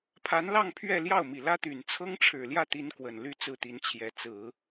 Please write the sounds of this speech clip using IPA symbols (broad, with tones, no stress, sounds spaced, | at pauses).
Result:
pʰ a˧˥ n l ɑ˥˧ ŋ pʰ ɥ ɛ˥˧ l j ɑ˥˩ ʊ̯ m i˨˩ l ä˥ t̪ y˨˩ n t͡sʰ ɤ˥ ŋ ʈ͡ʂʰ ɻ̩˨˩ l j ä˥˩ t̪ i˧˥ n k w ə˨˩ n l y˥˧ t͡s ɹ̩˥˩ t̪ i˧˥ n t͡ɕʰ j ɛ˧˥ t͡s ɹ̩˨˩˦